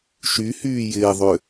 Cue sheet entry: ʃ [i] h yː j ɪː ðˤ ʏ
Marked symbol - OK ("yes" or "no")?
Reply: no